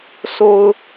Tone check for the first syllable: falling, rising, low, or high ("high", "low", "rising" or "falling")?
low